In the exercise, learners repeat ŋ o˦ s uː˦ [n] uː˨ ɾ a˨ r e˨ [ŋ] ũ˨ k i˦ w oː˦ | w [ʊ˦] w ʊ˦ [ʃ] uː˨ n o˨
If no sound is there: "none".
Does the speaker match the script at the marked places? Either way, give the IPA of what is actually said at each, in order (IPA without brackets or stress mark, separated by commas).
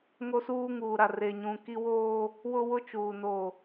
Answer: ŋ, ɲ, ʊ˦, t͡ʃ